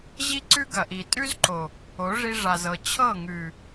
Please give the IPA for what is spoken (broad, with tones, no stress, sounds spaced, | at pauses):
ʑ i˦ ǀ ʉ˦ ɡ ɐ˨ ʔ i˨ tʼ ʉ˦ z ǃ o˨ | o˨˦ ʐ i˧ ʐ a˨ z ɤ˨ t͡ɕʰ ɤ˦˨ ŋ ʉ˨